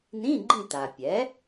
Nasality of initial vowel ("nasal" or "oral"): nasal